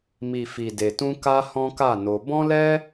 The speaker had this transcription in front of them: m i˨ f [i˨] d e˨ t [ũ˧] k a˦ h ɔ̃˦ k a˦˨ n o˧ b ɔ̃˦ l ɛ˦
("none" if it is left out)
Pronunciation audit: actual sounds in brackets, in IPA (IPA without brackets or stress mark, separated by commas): i˨, ũ˧